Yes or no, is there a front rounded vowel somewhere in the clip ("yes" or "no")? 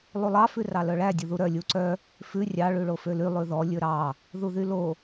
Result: yes